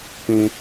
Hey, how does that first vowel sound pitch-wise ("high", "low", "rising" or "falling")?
high